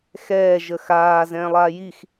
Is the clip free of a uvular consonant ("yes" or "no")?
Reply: yes